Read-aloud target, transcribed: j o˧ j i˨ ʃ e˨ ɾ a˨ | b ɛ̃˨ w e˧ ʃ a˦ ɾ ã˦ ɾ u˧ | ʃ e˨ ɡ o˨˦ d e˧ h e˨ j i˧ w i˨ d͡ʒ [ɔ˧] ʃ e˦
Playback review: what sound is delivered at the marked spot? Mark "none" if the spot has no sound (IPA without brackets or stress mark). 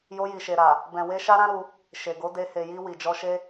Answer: ɔ˧